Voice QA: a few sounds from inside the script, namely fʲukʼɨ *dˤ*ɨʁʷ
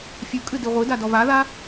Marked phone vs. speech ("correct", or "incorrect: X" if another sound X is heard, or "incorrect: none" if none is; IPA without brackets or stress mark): incorrect: d